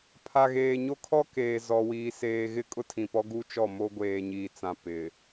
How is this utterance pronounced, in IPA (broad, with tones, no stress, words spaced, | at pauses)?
pʰa˨ɣeː˨ɲo˦kʰɔ˦ keː˨ zɔ˦wiː˦seː˦ ɣɪ˦kʼʊ˦tʰĩ˨pɔ˦ ɡu˦t͡ʃɔ˦˨ mo˦ɡʷeː˨ɲiː˨t͡sã˨ pɪ˨